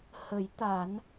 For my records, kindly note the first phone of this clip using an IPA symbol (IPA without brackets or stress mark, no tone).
h